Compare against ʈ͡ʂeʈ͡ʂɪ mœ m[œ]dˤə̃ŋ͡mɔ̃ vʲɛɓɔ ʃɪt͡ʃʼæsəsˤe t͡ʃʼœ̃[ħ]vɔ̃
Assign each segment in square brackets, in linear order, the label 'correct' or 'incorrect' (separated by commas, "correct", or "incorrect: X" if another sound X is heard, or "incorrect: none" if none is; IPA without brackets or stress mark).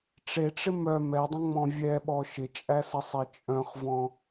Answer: incorrect: ɛ, incorrect: χ